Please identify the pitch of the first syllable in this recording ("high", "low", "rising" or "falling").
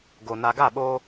low